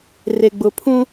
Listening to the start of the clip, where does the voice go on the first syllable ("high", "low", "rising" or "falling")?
low